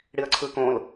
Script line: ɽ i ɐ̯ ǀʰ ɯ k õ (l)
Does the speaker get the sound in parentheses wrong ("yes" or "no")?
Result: no